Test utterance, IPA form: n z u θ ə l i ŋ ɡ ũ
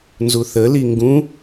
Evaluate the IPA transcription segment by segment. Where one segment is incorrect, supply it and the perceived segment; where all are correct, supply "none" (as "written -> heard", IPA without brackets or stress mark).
none